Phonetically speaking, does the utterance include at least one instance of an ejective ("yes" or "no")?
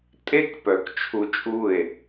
yes